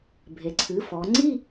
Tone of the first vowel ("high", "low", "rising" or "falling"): low